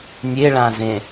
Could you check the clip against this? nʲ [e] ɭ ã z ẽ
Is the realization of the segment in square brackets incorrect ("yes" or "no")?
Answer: no